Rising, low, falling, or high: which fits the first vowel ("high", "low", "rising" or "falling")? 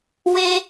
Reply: high